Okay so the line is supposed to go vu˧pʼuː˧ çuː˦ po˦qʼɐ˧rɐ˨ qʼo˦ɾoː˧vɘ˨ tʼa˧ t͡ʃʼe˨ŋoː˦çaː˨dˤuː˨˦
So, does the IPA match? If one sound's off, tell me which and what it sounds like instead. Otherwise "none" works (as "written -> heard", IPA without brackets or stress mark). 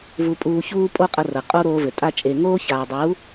p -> pʼ